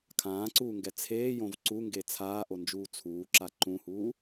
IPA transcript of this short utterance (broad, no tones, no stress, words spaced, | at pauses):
kʰãːǀuːŋɡɛ t͡sʰeːjõv ǀuŋɡe t͡sʰaːʔond͡ʒuː t͡sʰuːǁa ǃũhuː